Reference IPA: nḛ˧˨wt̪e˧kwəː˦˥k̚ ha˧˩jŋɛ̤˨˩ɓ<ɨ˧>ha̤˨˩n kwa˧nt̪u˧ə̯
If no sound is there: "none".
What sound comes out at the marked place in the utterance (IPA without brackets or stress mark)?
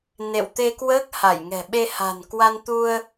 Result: e˧